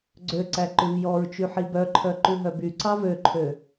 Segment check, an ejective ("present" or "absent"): absent